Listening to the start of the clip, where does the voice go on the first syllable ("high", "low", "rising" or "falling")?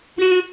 high